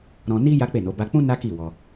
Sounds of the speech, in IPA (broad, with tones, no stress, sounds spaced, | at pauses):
ɾ ɔ̃˧ n i˦ j a˦ k͡p e˦˨ n o˨˦ b a˧ k͡p ũ˦ n a˦ k i˦˨ w ɔ˧